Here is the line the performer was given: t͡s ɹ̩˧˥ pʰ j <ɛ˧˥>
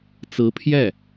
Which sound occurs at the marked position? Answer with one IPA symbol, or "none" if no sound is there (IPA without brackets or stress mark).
ɛ˥˩